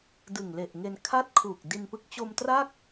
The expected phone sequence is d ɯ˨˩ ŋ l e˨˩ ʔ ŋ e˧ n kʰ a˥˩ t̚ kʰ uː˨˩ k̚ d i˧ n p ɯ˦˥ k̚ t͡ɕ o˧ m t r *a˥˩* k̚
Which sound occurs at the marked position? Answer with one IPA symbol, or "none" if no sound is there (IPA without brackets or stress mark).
a˥˩